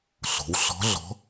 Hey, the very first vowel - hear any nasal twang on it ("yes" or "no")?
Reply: no